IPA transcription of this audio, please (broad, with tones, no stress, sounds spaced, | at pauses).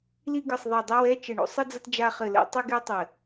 l i˥ ɡ ɨ˦˨ sˤ ðˤ i˦˨ dˤ i˥ w ɛ˧˥˧ t͡ʃ ɘ˦˨ ɳ o̰˥ sˤ e˥ d͡z ɐ˥ t d͡ʒ a˥ χ ɘ˦˨ l ɛ̰˥ tˤ ɨ˥ ɡ e˥ tˤ ɘ˦˨